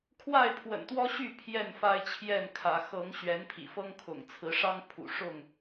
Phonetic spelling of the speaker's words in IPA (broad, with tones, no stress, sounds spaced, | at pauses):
kʰ w a˥˨ ɪ̯ pʰ w ə̰˨˩ n t̪ w ɔ˦ ɕ y˥˨ pʰ j ɛ˥˨ n f a˦ ɪ̯ t͡ɕʰ j ɛ˥˨ n kʰ ä˨˦ x ɤ˨˦ ŋ ɕ ɥ ɛ˨˦ n pʰ ḭ˨˩ f ɤ˦ ŋ kʰ ʊ̰˨˩ ŋ t͡sʰ ɹ̩˨˦ ʂ ɑ˦ ŋ pʰ ṵ˨˩ ʂ ʊ˥˨ ŋ